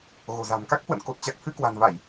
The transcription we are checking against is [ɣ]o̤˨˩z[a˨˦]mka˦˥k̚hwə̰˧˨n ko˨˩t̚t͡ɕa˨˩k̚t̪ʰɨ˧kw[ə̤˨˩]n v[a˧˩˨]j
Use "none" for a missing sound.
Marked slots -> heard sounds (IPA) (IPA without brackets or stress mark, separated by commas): ɣ, a̤˨˩, a̤˨˩, a˧˩˨